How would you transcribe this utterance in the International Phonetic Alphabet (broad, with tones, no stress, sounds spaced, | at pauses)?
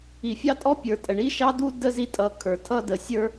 i˨ fʲ ɑ˦ tʼ ɔ˦ pʲ ə˞˨ tʼ ə˨ ɳ i˦ ʃ ɑ˦ d u˦ d ə˦ z i˦ tʼ ʌ˨˦ kʰ ə˞˨ tʰ ʌ˦ d ə˨ sʲ ə˞˦